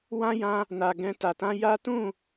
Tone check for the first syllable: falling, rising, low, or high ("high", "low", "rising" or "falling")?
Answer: high